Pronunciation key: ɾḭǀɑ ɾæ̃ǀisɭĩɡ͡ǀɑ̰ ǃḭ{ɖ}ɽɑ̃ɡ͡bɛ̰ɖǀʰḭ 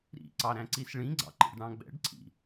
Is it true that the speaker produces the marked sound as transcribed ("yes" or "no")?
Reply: yes